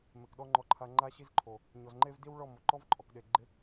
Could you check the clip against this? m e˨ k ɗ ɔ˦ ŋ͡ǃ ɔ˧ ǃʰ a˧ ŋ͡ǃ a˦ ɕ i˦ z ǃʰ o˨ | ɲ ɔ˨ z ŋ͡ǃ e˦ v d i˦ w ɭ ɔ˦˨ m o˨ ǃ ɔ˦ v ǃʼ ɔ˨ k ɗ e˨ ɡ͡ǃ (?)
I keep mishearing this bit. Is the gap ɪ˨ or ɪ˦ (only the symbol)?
ɪ˦